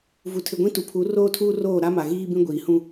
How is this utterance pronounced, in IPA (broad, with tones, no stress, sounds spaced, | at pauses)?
v u˨ tʰ ɪ˨ ɡʷ ĩ˦ t u˨ pʰ u˨˦ r oː˦ tʰ uː˦ r oː˦˨ ɾ a˦ m a˨ ɣ iː˦ b ĩ˦ ɡʷ iː˨ h ũ˦